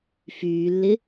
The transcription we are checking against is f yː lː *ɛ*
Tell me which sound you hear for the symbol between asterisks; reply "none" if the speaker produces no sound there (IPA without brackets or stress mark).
ɪ